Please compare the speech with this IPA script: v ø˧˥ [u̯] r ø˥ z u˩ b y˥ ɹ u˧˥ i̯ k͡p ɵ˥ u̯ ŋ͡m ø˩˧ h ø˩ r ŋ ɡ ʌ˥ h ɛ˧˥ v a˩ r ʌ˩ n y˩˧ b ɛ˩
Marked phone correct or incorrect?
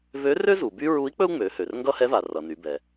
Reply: incorrect